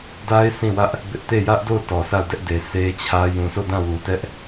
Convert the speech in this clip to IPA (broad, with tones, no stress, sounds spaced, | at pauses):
d a˦ ɪ̯ s ĩ˦˨ w ä˦ ʔ | b ɪ˦ ʔ t e˦˨ j ä˦ ʔ d o˦˨ ʊ̯ t ɔ˨ s a˦˨ ʊ̯ d ɛ˦ ʔ d e˨ s e˦ t͡ɕʰ ä˦ j ũ˨ s o˦˨ d ã˦˨ w u˨ t ɛ˦ ʔ